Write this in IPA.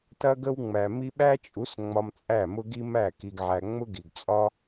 tɐ˧ ɡə˦wŋ͡mæ˨mi˦ ɓæ˦t͡ʃʼu˨˦s ŋ͡mɒ˧mt͡sʼæ˦˨mʊ˦ɡi˦ mæ˦˨ki˧ɡʕæ˧ ŋ͡mʊ˦ɡi˨ɡt͡sʼɒ˦

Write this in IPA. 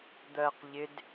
d̪ɜq ʎɪd

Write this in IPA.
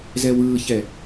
zɛwɯːçɛ

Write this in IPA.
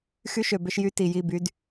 xy˦ʃø˨bʏ˦ʃjy˦ ti˨ji˦˨by˦d

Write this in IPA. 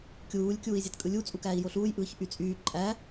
kʲuːlʲ kʲuːi̯zʲætkʼɯlʲu t͡sʼukæːi̯joɬuːj ʔɯːçʔyt͡sʼyː ǃʼæ

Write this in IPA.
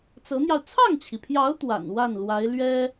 t͡sɤ˧˥n̪jɑ˧ʊ̯ t͡sʰɑ˥˩ŋt͡ɕʰi˩pʰjɑ˧˥ʊ̯ t̪wa̰˨˩n wa˥˩nlwa˧˥ɪ̯ lɥɛ˥

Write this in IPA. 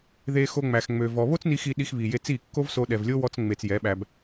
ðe˦xo˦ŋ͡mæ˧x ŋ͡mø˧vɔ˧ βo˦t͡sni˧xi˧ ɗi˧xβi˨je˧t͡si˦˨ kːo˦vso˧ ɗɛ˨vlʲo˦wɔ˧t͡s ŋ͡me˧t͡sjɛ˨˦ɓæ˧b

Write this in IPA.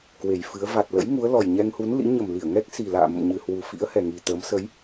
kwe˨˩jfɨ˨˦ə̯ va˨˩t̚lə̰˧˥j ŋu˨˦ə̯lɔ˨˩j ɲɛ˧ŋhu˨˦nlḭ˧˥ ɲə˨˩mli˧˩ə̯ŋɛ˦˥k̚ si˨˩la̰ː˧˨mə̰˧˨m ɲɨ˨˩hwu˨˩fḭ˧˥ə̯ hɛ˨˩ŋi˨˩t̪əː˨˦m sə˨˦j

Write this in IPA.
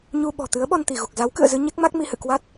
ɲu˧ɓɔ̤˨˩ t̪ɨ˨˦ə̯ɓɔ˧nt̪i˧˩ɣu˨˩k̚ za˨˦wkɨ̰˧˨ə̯zɨ˧ ɲɛ˦˥k̚ma˦˥k̚ mi˨˦hɨ̰˧˨kwa˦˥t̚

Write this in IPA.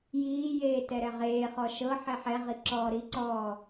jiːjeː tɛɾɛʁeːχɔ ʃɤ ħɛħɛʁi ǁɔːɾiǀɔː

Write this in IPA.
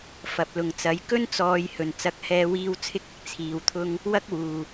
fɐ˨p̚lʊ˨ŋt͡sɐ˨˥j kɵ˥nt͡sɔː˨jhɵ˨˩n t͡sɐ˨˥k̚hɛː˧wiː˧w t͡sʰɪ˧k̚ɪ˨k̚ t͡sʰiː˨wt̪ʰʊ˥ŋ | wɐ˥k̚wuː˨˩

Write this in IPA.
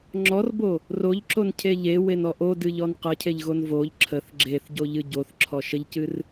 ŋ͡ǁɔrbo | roʎǁoncʰe ʎewenɔ ʔodɨʎɔn qəcʰeʎɣon voʎ ǁʰəθ ɡ͡ǁeθɟoʎɨ ɟoθǁʰɔ ʃəʎcɨr

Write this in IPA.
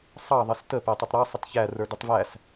sˤɑðˤɪs tə pætˤɪtˤɾɑsˤət çæ rə˞dɪtˤvæs

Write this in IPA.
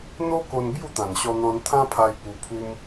n̪o˦ko˧n bju˥˧t̪ã˨˩nɕɔ˧n̪ɔ̃˧n t̪ʰã˦pʰa˧j pu˧pʰu˦m

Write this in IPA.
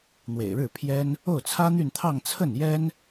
n̪wḛ˨˩ɪ̯ɻɻ̩˥˩pʰjɛ˥n | o˥˩ʊ̯t͡sʰä˥n̪y˥˧nt̪ʰɑ˥˧ŋ t͡sʰə˥˩njɛ˥n

